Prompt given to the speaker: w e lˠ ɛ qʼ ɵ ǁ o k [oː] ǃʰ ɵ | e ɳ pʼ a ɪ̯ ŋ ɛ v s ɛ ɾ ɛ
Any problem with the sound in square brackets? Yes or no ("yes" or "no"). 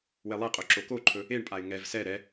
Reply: yes